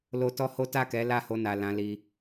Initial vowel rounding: rounded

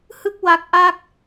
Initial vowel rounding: unrounded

